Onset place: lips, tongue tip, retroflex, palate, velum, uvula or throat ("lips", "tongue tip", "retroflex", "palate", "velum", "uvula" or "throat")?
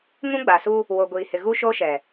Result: velum